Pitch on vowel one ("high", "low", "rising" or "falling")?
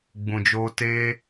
low